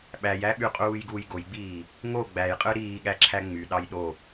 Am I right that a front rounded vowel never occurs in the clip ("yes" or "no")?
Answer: no